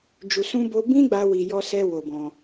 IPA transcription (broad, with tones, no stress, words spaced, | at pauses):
d͡ʒu˨sũ˧ bo˧bĩ˦ɡ͡ba˧ wi˨jɔ˧sɛ˧ wo˧bɔ̃˧